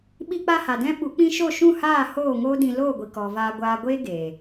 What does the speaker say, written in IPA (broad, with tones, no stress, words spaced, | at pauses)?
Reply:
ɓi˧k͡pa˧ ha˨dɛ̃˦ ɓu˨˦k͡pĩ˦ ʃo˦˨ʃũ˦˨haː˦˨ hoː˦˨ŋoː˦dĩ˧ loː˦˨ɡʷi˨ kɔ˨ vaː˧ɡʷaː˧ ɡʷeː˦ ɡeː˨